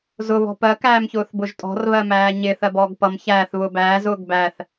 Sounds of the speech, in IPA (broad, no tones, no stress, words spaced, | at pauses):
zʊβɔ̤ pɜkæːmçʊːθbʊʒ tʼɔ̤rβɜmæː ɲɪːθɜbɔːɡ pʌm çæːθβʊː bæːzʊːɡ bæθ